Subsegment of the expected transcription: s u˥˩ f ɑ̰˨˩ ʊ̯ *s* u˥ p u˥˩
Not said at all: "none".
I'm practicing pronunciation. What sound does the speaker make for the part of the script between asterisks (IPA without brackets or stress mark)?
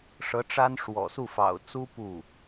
t͡s